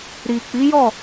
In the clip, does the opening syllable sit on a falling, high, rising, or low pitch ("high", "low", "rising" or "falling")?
low